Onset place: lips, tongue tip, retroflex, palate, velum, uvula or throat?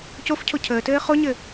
palate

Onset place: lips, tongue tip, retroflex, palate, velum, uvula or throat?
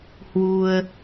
throat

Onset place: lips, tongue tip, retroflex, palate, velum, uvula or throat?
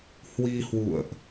throat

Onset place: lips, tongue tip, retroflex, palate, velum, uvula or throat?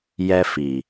palate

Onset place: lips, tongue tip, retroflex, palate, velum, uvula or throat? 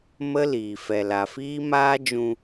lips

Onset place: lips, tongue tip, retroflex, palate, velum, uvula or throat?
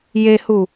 palate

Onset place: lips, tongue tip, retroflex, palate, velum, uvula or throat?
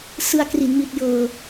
tongue tip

